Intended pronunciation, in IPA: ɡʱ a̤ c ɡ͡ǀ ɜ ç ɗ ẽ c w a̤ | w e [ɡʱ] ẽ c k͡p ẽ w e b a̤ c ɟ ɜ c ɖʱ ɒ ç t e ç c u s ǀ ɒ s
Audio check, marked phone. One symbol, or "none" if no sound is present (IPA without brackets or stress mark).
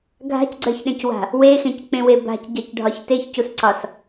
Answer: x